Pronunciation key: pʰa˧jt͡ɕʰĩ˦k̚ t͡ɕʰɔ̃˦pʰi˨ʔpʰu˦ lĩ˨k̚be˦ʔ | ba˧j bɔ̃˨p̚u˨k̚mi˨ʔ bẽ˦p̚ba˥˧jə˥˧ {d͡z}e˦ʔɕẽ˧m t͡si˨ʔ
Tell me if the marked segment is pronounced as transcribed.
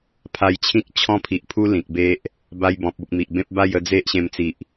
yes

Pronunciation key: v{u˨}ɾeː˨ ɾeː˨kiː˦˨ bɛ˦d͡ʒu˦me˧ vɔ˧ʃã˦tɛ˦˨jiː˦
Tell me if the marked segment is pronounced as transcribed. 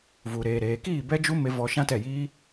yes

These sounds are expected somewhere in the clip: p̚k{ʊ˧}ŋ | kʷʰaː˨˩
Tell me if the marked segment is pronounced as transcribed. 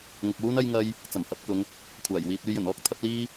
no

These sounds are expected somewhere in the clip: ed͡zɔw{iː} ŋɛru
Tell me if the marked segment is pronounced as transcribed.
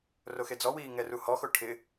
yes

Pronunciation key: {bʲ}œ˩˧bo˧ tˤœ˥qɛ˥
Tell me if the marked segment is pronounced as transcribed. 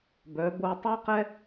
no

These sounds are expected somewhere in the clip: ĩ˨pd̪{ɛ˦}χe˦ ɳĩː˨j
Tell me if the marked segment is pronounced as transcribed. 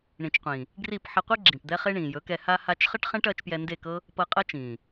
yes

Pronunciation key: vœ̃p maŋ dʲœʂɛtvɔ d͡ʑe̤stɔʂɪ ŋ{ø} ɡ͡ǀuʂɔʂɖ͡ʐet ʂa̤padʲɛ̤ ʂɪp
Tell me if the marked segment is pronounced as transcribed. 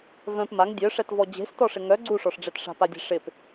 no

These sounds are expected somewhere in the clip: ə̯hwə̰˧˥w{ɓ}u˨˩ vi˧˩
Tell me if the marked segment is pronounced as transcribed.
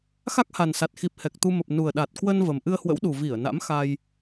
no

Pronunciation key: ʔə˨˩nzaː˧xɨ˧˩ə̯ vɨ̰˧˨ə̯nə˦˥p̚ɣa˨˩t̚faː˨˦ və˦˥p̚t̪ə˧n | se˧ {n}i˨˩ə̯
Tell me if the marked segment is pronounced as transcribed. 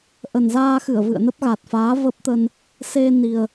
yes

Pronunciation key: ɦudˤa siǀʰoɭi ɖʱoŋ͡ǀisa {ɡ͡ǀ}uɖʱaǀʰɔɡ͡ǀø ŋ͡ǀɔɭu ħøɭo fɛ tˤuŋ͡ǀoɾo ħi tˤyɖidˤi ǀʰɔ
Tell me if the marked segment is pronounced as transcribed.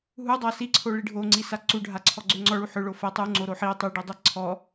no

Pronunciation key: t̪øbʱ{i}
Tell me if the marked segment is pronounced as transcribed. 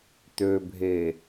no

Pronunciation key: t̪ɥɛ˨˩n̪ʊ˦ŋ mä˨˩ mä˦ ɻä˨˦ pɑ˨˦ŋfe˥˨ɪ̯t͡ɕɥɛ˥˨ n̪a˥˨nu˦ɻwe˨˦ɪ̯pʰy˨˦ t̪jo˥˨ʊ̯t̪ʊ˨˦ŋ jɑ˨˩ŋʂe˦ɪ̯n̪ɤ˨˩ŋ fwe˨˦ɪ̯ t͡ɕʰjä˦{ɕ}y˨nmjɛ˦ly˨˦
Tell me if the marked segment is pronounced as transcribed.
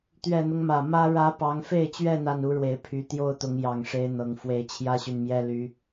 yes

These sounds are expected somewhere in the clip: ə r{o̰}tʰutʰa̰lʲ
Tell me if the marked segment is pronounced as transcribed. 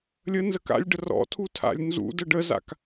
no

